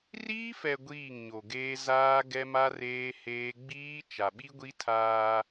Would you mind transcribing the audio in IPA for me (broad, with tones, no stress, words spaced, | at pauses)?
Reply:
riː˦fɛ˨ ɡʷiː˦˨ŋɲo˨ɡeː˦ zaː˦ ɡɛ˦ma˦reː˦ heː˦ ɡ͡biː˦ t͡ʃa˨ɓi˦ɡʷi˦tʰaː˦